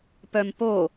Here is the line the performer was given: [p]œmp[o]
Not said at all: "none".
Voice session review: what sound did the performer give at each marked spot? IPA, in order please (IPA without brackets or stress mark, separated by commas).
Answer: p, o